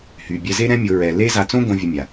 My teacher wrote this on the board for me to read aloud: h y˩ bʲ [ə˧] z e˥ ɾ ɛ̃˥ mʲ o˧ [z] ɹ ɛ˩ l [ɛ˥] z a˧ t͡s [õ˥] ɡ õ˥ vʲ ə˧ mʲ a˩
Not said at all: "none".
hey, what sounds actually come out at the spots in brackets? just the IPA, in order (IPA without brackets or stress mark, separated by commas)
ɛ˧, none, e˥, õ˥